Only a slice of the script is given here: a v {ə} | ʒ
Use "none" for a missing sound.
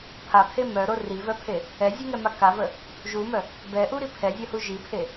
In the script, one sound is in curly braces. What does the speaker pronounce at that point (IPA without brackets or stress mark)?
ə